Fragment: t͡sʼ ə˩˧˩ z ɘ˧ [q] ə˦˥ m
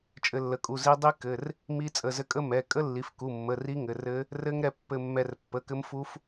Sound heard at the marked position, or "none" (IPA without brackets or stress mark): kʼ